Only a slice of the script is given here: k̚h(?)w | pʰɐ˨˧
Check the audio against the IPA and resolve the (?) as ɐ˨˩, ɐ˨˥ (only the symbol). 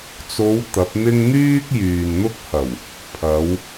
ɐ˨˩